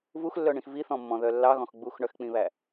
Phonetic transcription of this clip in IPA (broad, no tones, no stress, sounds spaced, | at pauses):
v u x lː œ ɳ ĩ x v i θ ɔ̃ mː ɔ̃ ð œ lː ɑ ɣ ɔ̃ x ɡ͡b u x ɳ œ x k͡p ĩ β æ